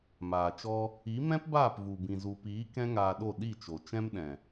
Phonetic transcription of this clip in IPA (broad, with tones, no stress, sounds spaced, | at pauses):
m aː˨ t͡ʃ ɔ˧ | i˨˦ m ɛ̃˦ p b aː˦˨ p v u˨ b ĩ˨ z u˨ p iː˨˦ k ɛ̃˦ ŋ aː˧ ɗ o˦˨ ɗ i˦˨ t͡ʃ o˨ t͡ʃ ɛ̃˦ m ɗ ɛ̃˨